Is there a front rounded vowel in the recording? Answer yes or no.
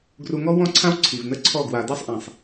no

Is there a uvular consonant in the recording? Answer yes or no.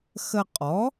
yes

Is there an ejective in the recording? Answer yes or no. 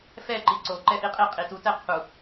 yes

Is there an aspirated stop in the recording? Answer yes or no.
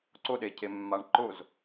yes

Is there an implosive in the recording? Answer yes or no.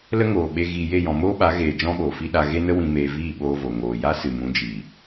yes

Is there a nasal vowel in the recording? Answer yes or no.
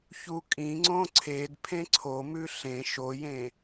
yes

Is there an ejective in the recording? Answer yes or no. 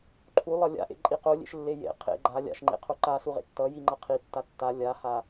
yes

